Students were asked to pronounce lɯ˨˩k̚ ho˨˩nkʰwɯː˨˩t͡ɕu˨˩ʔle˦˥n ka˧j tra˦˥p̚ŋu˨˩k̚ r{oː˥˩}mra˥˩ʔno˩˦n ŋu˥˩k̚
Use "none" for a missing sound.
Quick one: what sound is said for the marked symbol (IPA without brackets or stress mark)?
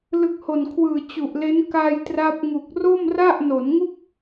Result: o˥˩